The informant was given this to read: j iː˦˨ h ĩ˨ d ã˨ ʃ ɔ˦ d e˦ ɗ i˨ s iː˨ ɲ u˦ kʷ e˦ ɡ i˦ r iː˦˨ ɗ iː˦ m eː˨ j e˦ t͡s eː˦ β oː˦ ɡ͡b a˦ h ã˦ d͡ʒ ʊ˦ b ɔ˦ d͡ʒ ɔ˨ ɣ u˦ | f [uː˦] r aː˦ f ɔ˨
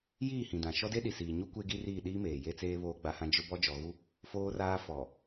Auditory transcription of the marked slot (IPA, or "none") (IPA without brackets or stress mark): oː˦